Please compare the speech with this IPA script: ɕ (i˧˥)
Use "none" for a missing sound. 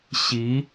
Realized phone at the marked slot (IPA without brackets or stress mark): i˧˥